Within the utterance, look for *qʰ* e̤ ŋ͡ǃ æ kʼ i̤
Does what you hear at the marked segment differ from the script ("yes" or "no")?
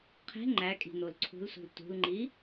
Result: no